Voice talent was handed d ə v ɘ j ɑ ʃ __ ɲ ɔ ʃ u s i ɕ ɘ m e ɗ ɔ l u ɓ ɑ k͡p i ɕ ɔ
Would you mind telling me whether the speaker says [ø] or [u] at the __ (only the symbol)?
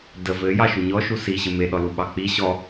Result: u